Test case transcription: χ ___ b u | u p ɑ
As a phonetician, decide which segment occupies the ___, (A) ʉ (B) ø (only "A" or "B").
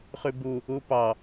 A